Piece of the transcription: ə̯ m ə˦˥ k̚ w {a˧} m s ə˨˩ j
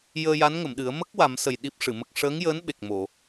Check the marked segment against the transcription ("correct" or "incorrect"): incorrect